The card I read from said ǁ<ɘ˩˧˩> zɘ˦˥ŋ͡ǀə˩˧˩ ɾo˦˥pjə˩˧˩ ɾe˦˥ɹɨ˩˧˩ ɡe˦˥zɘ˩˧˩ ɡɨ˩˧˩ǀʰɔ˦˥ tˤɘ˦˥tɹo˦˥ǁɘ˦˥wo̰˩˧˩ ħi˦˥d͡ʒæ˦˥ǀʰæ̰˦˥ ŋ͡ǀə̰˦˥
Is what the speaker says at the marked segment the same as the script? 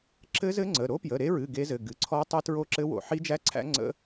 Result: no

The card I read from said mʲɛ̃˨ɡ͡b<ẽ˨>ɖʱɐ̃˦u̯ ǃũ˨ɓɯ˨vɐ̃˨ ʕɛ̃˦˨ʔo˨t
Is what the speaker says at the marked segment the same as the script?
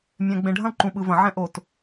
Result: yes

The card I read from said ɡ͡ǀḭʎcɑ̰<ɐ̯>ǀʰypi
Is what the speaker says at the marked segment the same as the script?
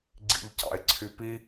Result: no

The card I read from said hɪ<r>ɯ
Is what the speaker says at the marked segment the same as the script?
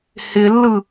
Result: no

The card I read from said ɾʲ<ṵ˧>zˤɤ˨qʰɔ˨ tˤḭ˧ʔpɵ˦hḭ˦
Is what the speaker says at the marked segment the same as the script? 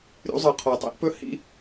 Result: yes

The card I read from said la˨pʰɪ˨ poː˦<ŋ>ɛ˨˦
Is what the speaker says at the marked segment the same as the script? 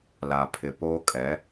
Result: no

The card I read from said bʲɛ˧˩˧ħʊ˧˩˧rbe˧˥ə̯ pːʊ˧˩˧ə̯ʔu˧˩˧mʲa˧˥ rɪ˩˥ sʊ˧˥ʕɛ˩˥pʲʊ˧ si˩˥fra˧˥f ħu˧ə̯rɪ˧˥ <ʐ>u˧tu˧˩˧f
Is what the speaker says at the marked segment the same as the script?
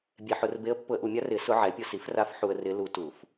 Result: no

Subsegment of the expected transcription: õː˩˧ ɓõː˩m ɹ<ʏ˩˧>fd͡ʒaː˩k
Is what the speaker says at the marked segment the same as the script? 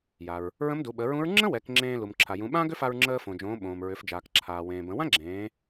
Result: yes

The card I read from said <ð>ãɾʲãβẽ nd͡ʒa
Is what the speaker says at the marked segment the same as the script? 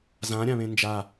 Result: no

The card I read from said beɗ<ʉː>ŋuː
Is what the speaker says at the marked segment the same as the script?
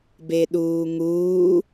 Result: no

